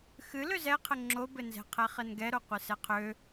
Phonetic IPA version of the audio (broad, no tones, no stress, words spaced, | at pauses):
xɨ løzɛqʰɘ ŋ͡ǁobɘnzɛ̤ qʰɛχɘnɡɛɾo qʷɨsɛqʰø